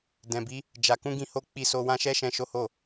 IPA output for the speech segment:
dɛ̃˨bi˨˦ | d͡ʒa˨ kũ˧ɡĩ˧ho˧ k͡pi˧so˧wã˦ ʃɛ˦ʃɛ̃˧ ʃo˦ho˦˨

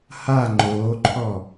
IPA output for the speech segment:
ha ŋ͡ǃoːǃʰɔ

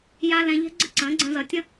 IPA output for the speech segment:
ja˧ lɛ̃˧ ʎɛ̤˦ɡ͡ǀə˦ǀə̃ː˨˦ ɡ͡ǀə̃˧zʌ˨ tʲə̃˦

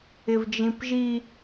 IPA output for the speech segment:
ɪvd͡ʒĩpʒi

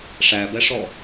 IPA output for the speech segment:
ʂæbɛʂɔ

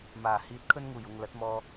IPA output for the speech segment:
maː˨˩ hiː˧t̚ kʰɵ˥nŋuː˨˩j ʊ˨ŋ lɐ˨˥t̚mɔː˧

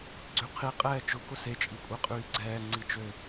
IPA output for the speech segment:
ɡ͡ǀyqʰi qʼɛːt͡ʃʊ kʊse t͡ʃʼikʷʼɛqʼyːɡ͡ǀɛː ŋ͡ǀit͡ʃø

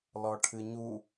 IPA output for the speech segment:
lɔʈʰɨɲu

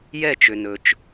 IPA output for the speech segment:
jɛ˥˧t͡ʃʏ˧nɵ˧t͡ʃ

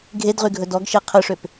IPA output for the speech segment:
ɡʱedʁyɡʱɵ dɔɡʃe qʰɵʂøp

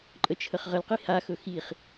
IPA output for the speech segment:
ǃʼət͡ʃʰəχʁəlqi haxɵ xiχ

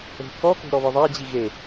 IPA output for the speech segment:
o̤ kɔko̤ ɾɔβɨðˤad͡ʑi ɣe

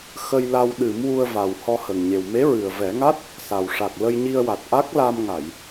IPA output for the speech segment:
xə˧j la˧wɗɨ˨˩˦m wu˧ə̯ va˨˩w hɔ˧hə˨˩ŋɲe˨˩w me˧˥ɹɨ˨˩ə̯vɛ˨˩˦ŋa˦˥t̚ | sa˨˩w ʂa˨˩k̚lə˧jɲi˧ə̯wa˨˩t̚ ʔa˦˥k̚la˧mŋa˨˩˨j

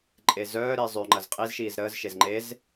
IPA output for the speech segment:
ǃʼezœːɾi zˤøŋ͡ǃɐz qʼizʃiːz ɾəːzʃez ŋ͡ǃez

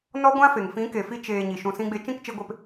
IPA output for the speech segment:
nɔ˦ɡʷã˦fe˨ŋ fĩ˨˦ke˨fi˧ t͡ʃeː˨ ɲi˨ ʃũ˧sĩ˦ɡ͡be˦ t͡ʃĩ˦˨kt͡ʃe˧ɡʷe˧p

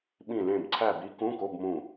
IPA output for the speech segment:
ɓĩ˦˨lẽ˦˨b ǀʰæ˦˨bi˧˥ kũ˧˥˧ko˧˥˧bmũ˦˨

